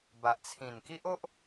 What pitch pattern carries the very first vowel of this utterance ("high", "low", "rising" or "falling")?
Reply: low